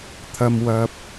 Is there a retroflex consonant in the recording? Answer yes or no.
no